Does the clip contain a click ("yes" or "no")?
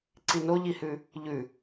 yes